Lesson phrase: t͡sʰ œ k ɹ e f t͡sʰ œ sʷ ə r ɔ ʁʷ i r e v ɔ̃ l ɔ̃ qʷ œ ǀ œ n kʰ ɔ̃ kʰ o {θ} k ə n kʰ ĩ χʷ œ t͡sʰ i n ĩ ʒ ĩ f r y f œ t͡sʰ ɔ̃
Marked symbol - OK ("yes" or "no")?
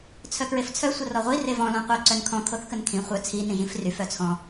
yes